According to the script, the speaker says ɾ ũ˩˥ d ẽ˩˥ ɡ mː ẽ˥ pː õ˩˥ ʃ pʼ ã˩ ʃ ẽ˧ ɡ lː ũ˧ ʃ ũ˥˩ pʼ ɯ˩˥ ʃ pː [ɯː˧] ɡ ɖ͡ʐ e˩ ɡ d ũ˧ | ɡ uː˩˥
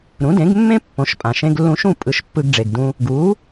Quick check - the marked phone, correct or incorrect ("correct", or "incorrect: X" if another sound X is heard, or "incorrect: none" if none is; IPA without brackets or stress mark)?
incorrect: ɯ˧